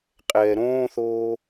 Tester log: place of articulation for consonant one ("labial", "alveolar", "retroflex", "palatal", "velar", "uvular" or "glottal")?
uvular